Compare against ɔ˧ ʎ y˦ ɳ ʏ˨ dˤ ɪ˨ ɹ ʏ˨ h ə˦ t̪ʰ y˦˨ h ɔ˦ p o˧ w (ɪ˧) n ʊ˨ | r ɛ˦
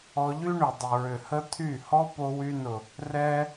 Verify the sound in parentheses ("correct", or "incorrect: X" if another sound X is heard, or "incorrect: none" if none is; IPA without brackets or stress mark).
incorrect: y˧